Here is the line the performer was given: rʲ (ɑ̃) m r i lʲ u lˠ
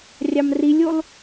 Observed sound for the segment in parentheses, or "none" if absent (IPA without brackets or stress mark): ɑ